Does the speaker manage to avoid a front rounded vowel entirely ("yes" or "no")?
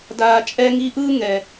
yes